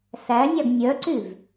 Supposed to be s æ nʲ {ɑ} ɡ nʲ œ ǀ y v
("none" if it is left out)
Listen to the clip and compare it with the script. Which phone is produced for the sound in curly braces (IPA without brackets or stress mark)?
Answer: ɑ